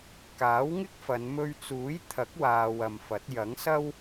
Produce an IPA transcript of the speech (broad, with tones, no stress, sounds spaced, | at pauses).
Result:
k aː˨˥ w ŋ ɪ˥ k̚ f ɐ˨˧ n m ɵ˧ ɥ t͡s uː˨˥ j t̪ʰ ɐ˨˥ k̚ w aː˨ w ɐ˨ m f ɐ˨˥ t̚ j ɐ˨˥ ŋ s ɐ˥ w